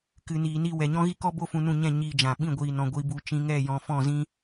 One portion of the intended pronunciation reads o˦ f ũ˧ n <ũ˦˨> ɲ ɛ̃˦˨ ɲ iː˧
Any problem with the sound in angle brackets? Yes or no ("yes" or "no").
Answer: no